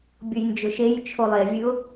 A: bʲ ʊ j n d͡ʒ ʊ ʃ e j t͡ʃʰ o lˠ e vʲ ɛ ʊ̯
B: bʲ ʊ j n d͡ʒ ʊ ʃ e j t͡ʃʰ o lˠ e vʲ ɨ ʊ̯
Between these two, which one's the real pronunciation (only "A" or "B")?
B